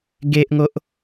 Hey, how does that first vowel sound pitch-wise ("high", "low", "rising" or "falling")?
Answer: high